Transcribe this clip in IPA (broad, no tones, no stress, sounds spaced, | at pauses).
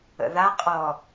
ə̰ ð a qʼ ɔ